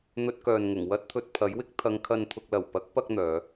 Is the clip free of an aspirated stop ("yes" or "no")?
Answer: no